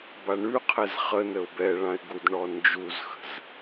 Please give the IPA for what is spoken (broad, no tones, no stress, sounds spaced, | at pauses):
b a ɳ ʉ qʰ ɛ z χ ə n ə ʊ̯ b ɛ ɭ ã ɪ̯ ɡ u d ɳ ɔ n d͡ʒ u z x ə̤ z